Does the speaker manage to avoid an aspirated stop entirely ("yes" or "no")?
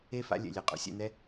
yes